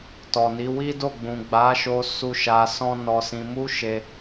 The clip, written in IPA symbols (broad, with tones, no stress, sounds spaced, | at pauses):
t ɔ˨ n i˨˦ w i˦ d o˦˨ ɡ͡b ũ˨ ɡ͡b a˨˦ ʃ o˧ s u˦ ʃ a˧ s ɔ̃˦ n ɔ˧ s ĩ˧ m u˦ ʃ e˧